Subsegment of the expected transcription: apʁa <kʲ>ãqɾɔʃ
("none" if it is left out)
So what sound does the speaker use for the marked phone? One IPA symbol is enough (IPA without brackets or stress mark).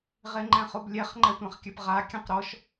kʲ